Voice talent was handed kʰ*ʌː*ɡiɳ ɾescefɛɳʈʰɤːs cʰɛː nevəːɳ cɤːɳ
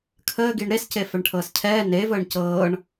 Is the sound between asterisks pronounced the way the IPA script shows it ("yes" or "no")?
no